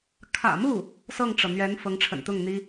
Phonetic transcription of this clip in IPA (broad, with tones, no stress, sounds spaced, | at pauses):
kʰ ä̰˨˩ m u˥˩ | s ɤ˥˩ ŋ ʈ͡ʂ ɤ˩ n̪ ɥ ɛ˧˥ n f ɤ˧˥ ŋ ʈ͡ʂʰ ə̰˨˩ n t̪ ʊ˥˩ ŋ n̪ i˥